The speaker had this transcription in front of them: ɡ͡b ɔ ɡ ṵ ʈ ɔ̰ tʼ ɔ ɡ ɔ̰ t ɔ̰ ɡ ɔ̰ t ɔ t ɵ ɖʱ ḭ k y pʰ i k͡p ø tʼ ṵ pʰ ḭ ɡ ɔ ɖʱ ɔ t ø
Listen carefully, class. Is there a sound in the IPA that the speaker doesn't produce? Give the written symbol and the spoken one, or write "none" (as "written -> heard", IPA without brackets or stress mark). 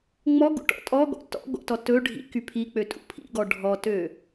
ɡ͡b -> ŋ͡m